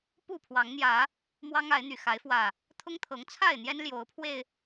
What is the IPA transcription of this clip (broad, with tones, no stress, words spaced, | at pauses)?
pu˥˨pʰwɑ˨˦ŋn̪jä˨˦ | mwɑ˦ŋa˨˦ɪ̯n̪y˨˩ xa˨˦ɪ̯fwä˨˩ | t̪ʰʊ˦ŋt̪ʰɤ˨˦ŋ t͡sʰa˥˨ɪ̯n̪jɛ˦n ljo˨˦ʊ̯pʰwe˧ɪ̯